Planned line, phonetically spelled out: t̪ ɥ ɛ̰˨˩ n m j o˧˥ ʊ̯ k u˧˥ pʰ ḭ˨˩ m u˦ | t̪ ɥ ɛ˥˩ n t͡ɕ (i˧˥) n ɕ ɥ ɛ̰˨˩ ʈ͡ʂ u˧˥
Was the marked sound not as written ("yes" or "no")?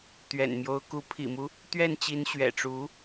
no